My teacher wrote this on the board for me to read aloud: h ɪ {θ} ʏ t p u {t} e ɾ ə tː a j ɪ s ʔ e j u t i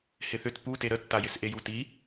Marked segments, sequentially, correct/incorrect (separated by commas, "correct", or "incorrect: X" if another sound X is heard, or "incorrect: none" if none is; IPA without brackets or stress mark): correct, correct